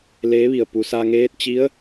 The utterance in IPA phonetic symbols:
l eː˧˥ ʋ i˧˩ ə̯ p u˩ s a˧ ŋ eː˧˥ t̚ t͡ɕ i˧˥ ə̯

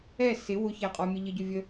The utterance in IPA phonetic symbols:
ɛ s ɪ w ʊ ç æ qʼ ɔ mʲ ə ʎ ə ɟ ʊ vʲ ə

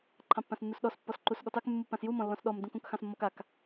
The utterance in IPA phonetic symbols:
ǃʰ ɑ̃ pː ã s nː u s ɗ ɔ s pː ɔ s ǃ u s ɠ ɔ t ɑ k mː u pː ã s j u m ɔ̃ lː ɔ̃ s ɗ ɔ m d ũ k ũ k x ɑ̃ s mː ɔ k a k

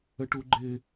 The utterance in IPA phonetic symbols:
ə ʈ u ɡ͡ǃ ɪ

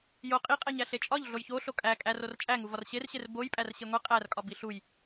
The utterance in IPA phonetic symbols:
j o qʼ i qʼ æ ɲ æ ɬ e t͡ʃʼ ɒ ʎ ɮ o j ç o ɬ o kʼ æ kʼ æ r o r t͡ʃʼ æ ŋ u v ɒ r ɕ e r ɕ e r b o j pʼ æ r ɕ e ŋʷ i qʼ æ r kʼ ɒ b i ɬ u j

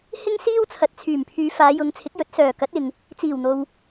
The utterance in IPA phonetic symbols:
h ɪ˥ ŋ s iː˥ w t͡sʰ ɐ˨ t̚ t͡sʰ yː˨˩ m pʰ yː˨˧ f aː˨˧ j ʊ˨˧ ŋ t͡sʰ ɪ˨˥ k̚ j ɵ˨˥ t̚ s œː˨˩ k ɐ˨˥ t̚ ɪ˨ ŋ | t͡s iː˨˩ w n̪ o˨ w

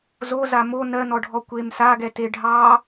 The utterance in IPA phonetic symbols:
z o z a m o n ɜ n ɔ ɖʱ ɔ kʷ e m s a ɡ ɛ t e ɖʱ ɑ

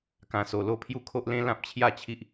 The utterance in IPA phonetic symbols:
k ã˧ s o˧ l o˥˧ pʰ j u˥˧ kʰ o˦ ʔ l ẽ˦ l ã˦ p̚ t͡ɕʰ j a˥˧ t͡ɕʰ i˦ ʔ

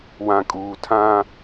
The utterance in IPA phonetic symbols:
w ã˨ kʼ uː˨ tʰ ã˦

